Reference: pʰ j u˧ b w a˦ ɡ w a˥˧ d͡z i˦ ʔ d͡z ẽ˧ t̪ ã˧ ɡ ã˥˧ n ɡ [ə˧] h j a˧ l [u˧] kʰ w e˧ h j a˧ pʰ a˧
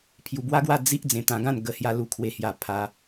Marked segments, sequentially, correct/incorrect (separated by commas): correct, correct